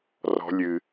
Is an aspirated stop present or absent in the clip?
absent